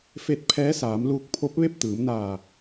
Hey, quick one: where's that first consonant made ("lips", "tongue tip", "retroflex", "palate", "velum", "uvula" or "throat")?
lips